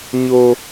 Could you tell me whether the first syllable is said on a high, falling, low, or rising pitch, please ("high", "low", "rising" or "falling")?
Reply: low